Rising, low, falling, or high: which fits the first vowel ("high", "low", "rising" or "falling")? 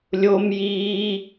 high